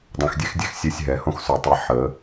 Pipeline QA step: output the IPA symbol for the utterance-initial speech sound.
dˤ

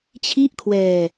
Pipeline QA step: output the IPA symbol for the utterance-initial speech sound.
t͡ɕʰ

